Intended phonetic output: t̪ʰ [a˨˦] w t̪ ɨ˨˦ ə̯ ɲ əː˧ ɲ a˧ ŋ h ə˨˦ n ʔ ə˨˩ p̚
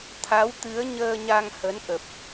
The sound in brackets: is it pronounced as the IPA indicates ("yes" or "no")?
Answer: yes